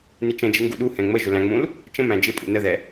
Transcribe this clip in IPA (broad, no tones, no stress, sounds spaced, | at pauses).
n ɪ t͡ʃ ə̃ d͡ʒ ɪ ŋ ɡ u ɗ u h ɛ̃ ŋ͡m ə ʒ ʊ l æ̃ ŋ͡m ũ l | t͡ʃ ə̃ m æ̃ d͡ʒ ɪ pʼ ṵ n ə ð ɛ